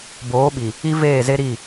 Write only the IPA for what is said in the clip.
b oː˨˦ ɓ i˨ | i˦ v eː˦˨ z e˦ ɾ i˦˨

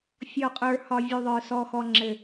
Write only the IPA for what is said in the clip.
fʲ ɔ˨ qʼ ə˞˨ h ɒ˨ vʲ u˨ ðˤ ə˞˨ s ɔ˨ x ɔ˨ ŋ͡ǁ ɘ˨

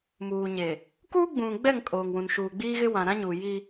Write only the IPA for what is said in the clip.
m uː˨ ɲ e˨ | k uː˦ ɡ͡b ũ˨ ɡ͡b ɛ˦˨ ŋ kʼ oː˨ ŋ w ũ˨ n ʃ uː˨ ɡ͡b iː˦ ɣ ɪ˦ w ã˨ ɾ ã˦ ɲ uː˨ j i˦

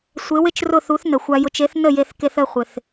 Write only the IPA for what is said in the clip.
sʷ e˩˥ w ɪ˥ t͡ʃ r ʊ˥˩ θ u˩˥ θ n ə˩ xʷ a˧ j ʊ˧ t͡ʃ e˩˥ θ n ə˥˩ j e˧ θ k e˧ θ ə˥˩ χʷ ɪ˩ θ

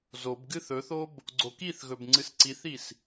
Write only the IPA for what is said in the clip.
z o b ɡ ɨ θ ɵ θ o b | ɡ͡ǀ o k i θ ɣ ɵ b ŋ͡ǀ ɨ s ǀ i θ i s

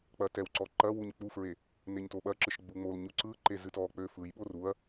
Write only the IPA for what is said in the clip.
k͡p ɐ t ɛ w ǀ ɔ ǃ ɐ w u ɲ k͡p u f ɹ e | n e ɲ t o ɓ ɐ ǁ ɨ ʃ ɡ͡b u ŋ͡m o l ɲ u ǀ ɯ ǃ e z ɨ t ɔ k͡p ø f ɯ j ɓ o r u ɐ̯

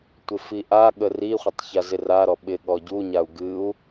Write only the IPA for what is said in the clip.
tʷ ɪ f i ʔ a ɠ ə r i χʷ ɪ tˤ ç a z ɪ r a ɾ ɔ ɓ ɪ ɠ ɔ ɟ u ɲ a u̯ ɡ ɨ u̯

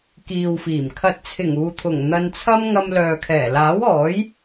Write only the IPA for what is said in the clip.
k iː˨ w f iː˨˩ m kʰ ɐ˨ t̚ t͡sʰ ɪ˨˩ ŋ uː˨ t̪ʰ ʊ˨˩ ŋ n̪ ɐ˧ n t͡sʰ ɐ˥ m ŋ ɐ˧ m l œː˨ kʰ ɛː˨˩ l aː˨˥ w ɔː˨˥ j

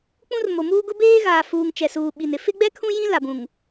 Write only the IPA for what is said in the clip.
k͡p ũ˦ r m o˨ m uː˦ ɡ ʊ˦ b eː˦ ɣ aː˨ f uː˨ ŋ t͡ʃ ɛ˨ s uː˨ ɓ i˨ n ɪ˦ f ɪ˦ ɡ͡b ɛ˦ kʰ ũ˦ j ĩ˦ l a˨ b ũ˨ ŋ

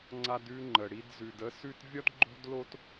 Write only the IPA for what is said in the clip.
ŋ͡ǀ a˧ d ʉ˧ ŋ͡ǃ ə˨ ɽ i˧ d z ʉ˨ d ə˦ s ʉ˦ t vʲ ɒ˦ d ɡ͡ǃ o̤˦ d l o˦ t

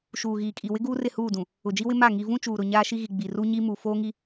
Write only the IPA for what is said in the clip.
ʃ uː˨ ɣ iː˨ kʼ i˨ w ɪ˦ ɡ uː˦ r ɪ˦˨ h uː˦˨ d ũ˨ | ʊ˨ d͡ʒ i˦ w ɪ˦ m a˦˨ ŋ i˨ v ũ˦ t͡ʃ uː˨ ɾ ʊ˨ ɲ aː˦ ʃ i˦ ɣ i˨ ɡ͡b i˨ r u˦ ɲ i˦ m u˨ f oː˦ ŋ i˦

